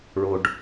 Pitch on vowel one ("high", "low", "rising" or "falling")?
low